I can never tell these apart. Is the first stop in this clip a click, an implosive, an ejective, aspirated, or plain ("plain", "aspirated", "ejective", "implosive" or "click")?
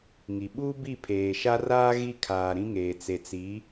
implosive